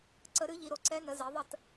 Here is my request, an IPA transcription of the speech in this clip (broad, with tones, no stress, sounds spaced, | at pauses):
ǀ ə˨˩˦ ɾ ɨ˩˥ ʎ i˨ ɾ o˨ ǀ ɛ˧˥ n ə˩˥ z e˩˥ ðˤ ə˥˩ t